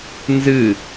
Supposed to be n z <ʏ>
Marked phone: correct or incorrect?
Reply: incorrect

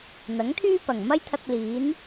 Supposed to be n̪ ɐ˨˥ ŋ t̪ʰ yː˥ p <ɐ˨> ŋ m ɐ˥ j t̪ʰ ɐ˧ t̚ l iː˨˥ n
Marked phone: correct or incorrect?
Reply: incorrect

